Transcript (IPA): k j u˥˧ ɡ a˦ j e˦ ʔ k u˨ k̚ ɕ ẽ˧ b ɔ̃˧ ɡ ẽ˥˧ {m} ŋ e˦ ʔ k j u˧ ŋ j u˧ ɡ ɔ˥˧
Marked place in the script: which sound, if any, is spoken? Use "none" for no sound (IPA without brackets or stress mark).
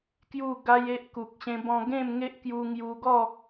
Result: m